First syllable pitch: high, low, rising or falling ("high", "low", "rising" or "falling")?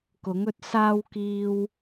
rising